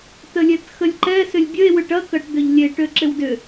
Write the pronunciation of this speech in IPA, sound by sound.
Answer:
t ə lʲ ɛ t x ə lʲ ǃ ɛ s ʏ lʲ bʲ ə e̯ w ʏ ʈ ɐ k ɐ ʈ d̪ ʏ ʎ lʲ e ʈ ø ǁ ɪ w d ʏ

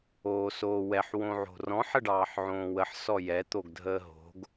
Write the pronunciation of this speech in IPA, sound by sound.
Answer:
oː s oː w ɛ ħ w õ ʕ o̤ r ɔ̃ ħ ə ɖ ɑː ħ ʕ õː w ə ħ s ɔ j ɛ t̪ o ɡ dʱ əː ɦ o̤ ɡ

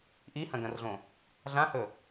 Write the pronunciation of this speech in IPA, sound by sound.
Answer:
ʔ i h ɐ̃ ɡ ɐ̃ r ɮ õ | ɮ ã h ɵ

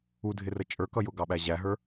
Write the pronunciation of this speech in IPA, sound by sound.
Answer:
u dʱ ɪ r ə t͡ʃʼ ə˞ k ʌ j ʊ ɡ ɑ ɓ æ ʑ æ ɦ ə˞

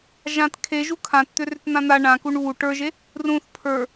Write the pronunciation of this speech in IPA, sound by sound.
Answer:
ʒ ã t kʰ e ʒ u kʰ ã t t̪ ʏ r ʏ t n̪ ã n̪ a ɳ ã k u ɳ β u ʈ ə˞ ʒ e | r ũ θ pʰ ə˞

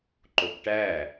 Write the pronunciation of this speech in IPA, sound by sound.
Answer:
ǃ o b ʈ æ

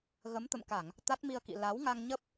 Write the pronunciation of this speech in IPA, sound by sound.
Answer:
ɣ ə˨˦ m t̪ ə̰˧˨ m k a˧˩˨ ŋ | t̪ a˦˥ t̚ m i˧ ə̯ k ḭ˧˨ l a˨˦ w ŋ a˧ ŋ ɲ ə˦˥ p̚

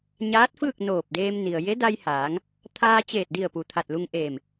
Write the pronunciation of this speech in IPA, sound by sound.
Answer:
ɲ aː˧˥ t̚ f ɯː˥˨ k̚ n oː˧˩ p̚ d eː˧ m n i˩ ə̯ j e˧˥ d a˧ j h aː˩˧ ŋ | t̪ʰ aː˧ t͡ɕ eː˧˩ t̚ d i˧˩ ə̯ p u˩ t̪ʰ a˧˩ t̚ l u˧ ŋ ʔ eː˧˩ m

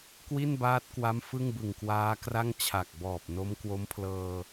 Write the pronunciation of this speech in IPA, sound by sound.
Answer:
k w i˥˩ n b aː˦˥ t̚ k w a˦˥ m f ɯ˥˩ ŋ b ɯ˨˩ ŋ k w aː˦˥ k r a˥˩ ŋ t͡ɕʰ a˨˩ k̚ b ɔː˨˩ p̚ n o˦˥ m k w o˦˥ m pʰ l ɤː˧

